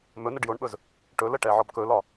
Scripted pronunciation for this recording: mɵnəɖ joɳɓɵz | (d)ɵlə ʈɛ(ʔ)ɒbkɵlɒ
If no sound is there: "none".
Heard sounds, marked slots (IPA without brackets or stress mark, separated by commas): ʈ, ʕ